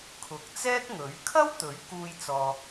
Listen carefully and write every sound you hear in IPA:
kʰ ʊ˨ k̚ t͡s ɛː˥ k̚ ŋ ɵ˨˥ ɥ kʰ ɐ˥ w t̪ ɵ˨˥ ɥ k uː˧ j t͡s ɔː˨

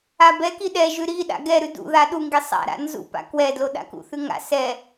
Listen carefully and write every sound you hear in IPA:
a b ɛ k i ɗ ɛ ʒ ʉ ɾ i ɗ a̰ ɡ ɛ ɾ ʉ d ṵ ð a ɗ u ŋ ɡ i sˤ a̰ ɾ a̰ n z ṵ p a̰ k w ɛ d l o ɗ a̰ k ṵ θ ʉ ŋ a̰ s ɛ

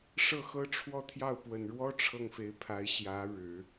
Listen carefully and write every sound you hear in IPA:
ʂ ɤ˥˩ x ɤ˥ ʈ͡ʂʰ w ɔ˥˧ t̪ʰ j ɑ˥˩ ʊ̯ p w ə˨˩ n ɻ w ɔ˥ ʈ͡ʂʰ ɤ˥˩ ŋ f e˧˥ ɪ̯ pʰ a˧˥ ɪ̯ ɕ j ä˧˥ ɻ ɻ̩˨˩˦

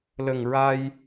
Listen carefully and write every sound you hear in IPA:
l ə˨˩ ŋ ɹ a˧ j

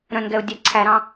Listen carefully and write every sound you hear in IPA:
ɾ œ̃ n ɡ ɛ ʊ̯ dʲ æ ǀʰ æ ɾ ɑ̃

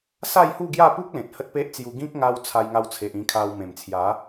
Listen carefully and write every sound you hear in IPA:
s a˥˧ j h u˥˧ ɡ j a˥˧ p u˦ k̚ l ẽ˨ t̚ h ə˦ t̚ p e˦ ʔ t͡s j u˧ ɡ ĩ˦ k̚ ŋ a˧ w t͡sʰ a˧ j ŋ a˧ w t͡sʰ e˨ ʔ ĩ˧ kʰ a˧ w m ẽ˨˩ m t͡sʰ j a˨˦

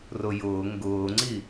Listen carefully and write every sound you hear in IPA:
r ʊ j ʊː ŋ ɡ ʊː ŋ͡ǀ i

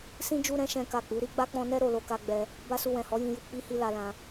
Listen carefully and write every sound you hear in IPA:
s ĩ˦ d͡ʒ u˧ ɾ ɛ̃˧ ʃ ɛ̃˦ k a˦˨ k͡p u˨˦ ɾ i˦ ɡ͡b a˦ k͡p ɔ̃˧ n ɛ˦ ɾ o˦˨ l o˧ k a˧ ɡ͡b ɛ˧ | b a˦ s u˧ w ɛ̃˨ h ɔ˨˦ j ĩ˧ j u˧ k͡p i˦ h i˦ l a˧ l ã˧

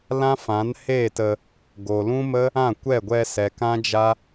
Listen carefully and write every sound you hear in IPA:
l ã˦ f ã˨˦ n h eː˦˨ t ə˧ | ɡ o˨ l ũ˦ m ə˦ | ã˦˨ kʷ ɛ˦˨ ɡʷ ɛ˧ s ɛ˨ k ã˦ d͡ʒ a˦

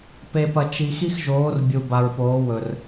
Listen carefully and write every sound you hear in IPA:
p e˧ p ɐ˧ t͡ʃ i˧ x i˦ x ʒ oː˨˦ r bʲ u˨ b a˨ ɹ p oː˨˦ w ɵ˨ r

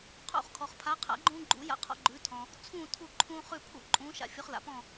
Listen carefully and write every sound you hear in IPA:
qʰ ṵ˥˨ χ kʰ ɔ˨ χ pʰ a˨˥ qʰ a̰˨˥ ɡ͡ǃ ũː˦ ɡ͡ǃ ṵ˨˥ j a̰˦ qʰ ɔ̰˦ ɡ͡ǃ ʉː˨˥ tʰ ɔ̃˨ | t͡sʰ ũː˥˨ tʰ u˥˨ ǃʰ ũː˦ χ ʉ˥˨ pʰ ṵ˥˨ ǃʼ ũː˨˥ ʃ a̰˦ fʲ u˨˥ χ l a̰˨ p ɔ̃˥˨

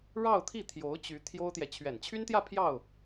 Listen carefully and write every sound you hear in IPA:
ɻ ɑ˥˧ ʊ̯ t̪ʰ i˥˩ t̪ʰ j o˧˥ ʊ̯ t͡ɕ y˧˥ t̪ʰ j o˥ ʊ̯ t̪ j ɛ˨ t͡ɕʰ ɥ ɛ˨˩ n t͡ɕʰ y˥ n t̪ j ä˥˧ pʰ j ɑ˥˩ ʊ̯

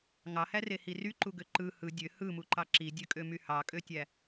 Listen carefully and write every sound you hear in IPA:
ŋ ɑ h æ r e h i r y ǃ u ɡ ø ǃ ɯ h ɯ dʲ ø h ɯ m u ǃ ɑ ǁ i dʲ ø kʼ ø m y h ɑ kʼ ø tʲ æ

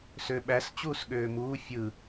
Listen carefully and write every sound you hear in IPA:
s ø ɓ æ s t͡ɕ uː s ɠ øː m uː fʲ ɯ

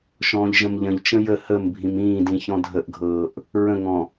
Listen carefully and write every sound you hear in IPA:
ʃ ɔ̃ː ʎ ʒ ə̃ m ʎ ə̃ ʎ t͡ʃ ə̃ j ə h ə m bʱ ĩ m ĩː d ĩ ç ɔ̃ dʱ ə ʔ ɡʱ ɤː ʔ | ɹ ə̃ ŋ ɔ̃

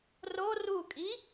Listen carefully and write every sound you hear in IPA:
r o r u kʼ i

